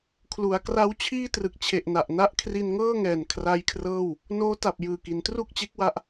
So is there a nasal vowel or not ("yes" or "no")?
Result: no